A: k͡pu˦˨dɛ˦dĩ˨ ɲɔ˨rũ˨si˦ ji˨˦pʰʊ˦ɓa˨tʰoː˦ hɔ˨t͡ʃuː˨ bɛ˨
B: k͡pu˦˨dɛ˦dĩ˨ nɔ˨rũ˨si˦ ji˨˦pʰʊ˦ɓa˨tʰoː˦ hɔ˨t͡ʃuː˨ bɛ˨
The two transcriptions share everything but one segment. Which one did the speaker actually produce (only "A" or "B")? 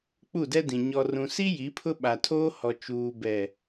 A